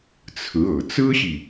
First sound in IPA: t͡sʰ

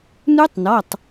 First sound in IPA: n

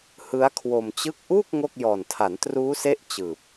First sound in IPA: h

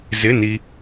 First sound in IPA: z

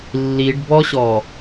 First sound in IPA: lː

